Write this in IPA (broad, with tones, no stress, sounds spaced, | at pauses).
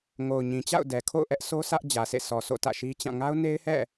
ŋ o˨ ʊ̯ ɲ ĩ˨ t͡ɕ a̰˦˨ ʊ̯ d ɛ˨ kʰ o̰˦˨ ʊ̯ ʔ ɛ˦ ʔ s o˦ s ä˦ ʔ d͡ʑ ä˨ s ḛ˦˨ s ɔ˨ s o̰˦˨ t ä̰˦˨ ʃ i˦ t͡ɕ ã˦˨ ŋ a˦ ʊ̯ n e˦ ɪ̯ h ɛ̰˦˨